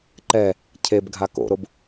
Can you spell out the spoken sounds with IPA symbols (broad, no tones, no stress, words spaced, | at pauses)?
ǃɛ | cʰeb ɡʱako̰ɾob